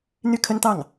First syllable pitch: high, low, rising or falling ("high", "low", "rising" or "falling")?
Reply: falling